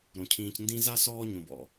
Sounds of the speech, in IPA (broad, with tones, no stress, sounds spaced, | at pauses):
ɾ õ˩ cʰ ĩː˨ c n d ĩ˦ z a˥ s ɔː˦ ɲ õ˩ b ɔ̰˩